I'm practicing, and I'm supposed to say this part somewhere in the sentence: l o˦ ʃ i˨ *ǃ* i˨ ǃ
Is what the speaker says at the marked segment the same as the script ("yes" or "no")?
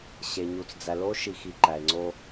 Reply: no